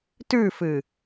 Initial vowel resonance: oral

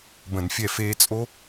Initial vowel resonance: nasal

